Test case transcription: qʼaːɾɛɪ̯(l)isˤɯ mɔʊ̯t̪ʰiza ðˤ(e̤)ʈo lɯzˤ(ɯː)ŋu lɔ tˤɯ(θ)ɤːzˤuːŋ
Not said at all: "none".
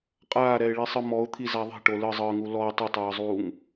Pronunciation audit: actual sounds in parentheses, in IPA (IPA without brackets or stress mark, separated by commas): ɭ, e̤, ɯː, tˤ